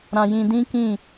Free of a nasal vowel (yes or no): no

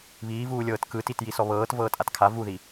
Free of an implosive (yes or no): yes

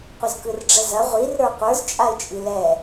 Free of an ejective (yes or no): no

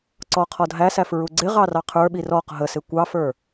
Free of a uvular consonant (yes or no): no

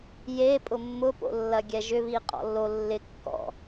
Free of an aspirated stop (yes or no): yes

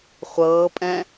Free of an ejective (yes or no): no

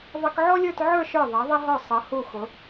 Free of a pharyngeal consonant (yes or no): no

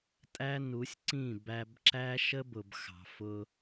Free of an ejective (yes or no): no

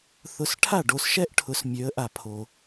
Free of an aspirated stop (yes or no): no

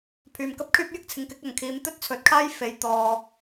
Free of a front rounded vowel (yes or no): no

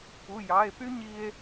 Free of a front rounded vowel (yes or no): no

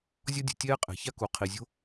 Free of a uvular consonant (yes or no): no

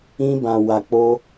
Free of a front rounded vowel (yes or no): yes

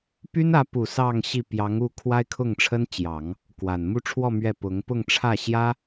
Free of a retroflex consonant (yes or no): no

